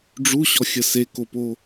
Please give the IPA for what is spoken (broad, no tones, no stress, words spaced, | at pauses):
ɖ͡ʐuɕɔxʲə sekopo